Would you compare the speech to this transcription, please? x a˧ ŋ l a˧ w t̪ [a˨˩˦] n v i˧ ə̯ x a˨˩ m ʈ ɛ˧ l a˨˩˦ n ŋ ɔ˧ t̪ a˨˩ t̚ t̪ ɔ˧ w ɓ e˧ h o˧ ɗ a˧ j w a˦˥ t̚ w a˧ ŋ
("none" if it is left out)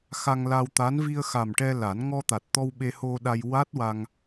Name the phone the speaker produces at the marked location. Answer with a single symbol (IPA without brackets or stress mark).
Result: a˧˥